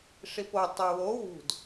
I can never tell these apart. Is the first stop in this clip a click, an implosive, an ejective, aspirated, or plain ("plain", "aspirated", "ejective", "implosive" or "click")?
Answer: plain